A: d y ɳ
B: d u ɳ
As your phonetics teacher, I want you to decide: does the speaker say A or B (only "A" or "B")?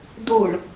B